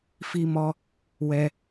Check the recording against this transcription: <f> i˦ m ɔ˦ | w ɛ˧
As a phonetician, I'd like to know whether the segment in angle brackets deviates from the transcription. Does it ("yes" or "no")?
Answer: no